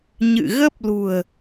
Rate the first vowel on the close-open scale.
close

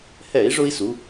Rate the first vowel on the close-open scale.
mid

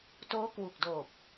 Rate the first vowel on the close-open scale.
mid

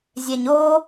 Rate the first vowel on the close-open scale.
mid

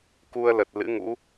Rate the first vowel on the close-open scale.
close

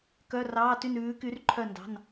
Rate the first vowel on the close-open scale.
mid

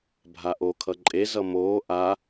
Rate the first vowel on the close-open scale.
open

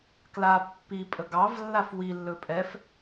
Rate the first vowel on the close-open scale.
open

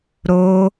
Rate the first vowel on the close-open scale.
mid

